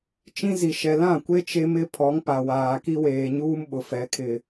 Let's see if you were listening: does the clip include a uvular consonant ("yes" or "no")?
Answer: no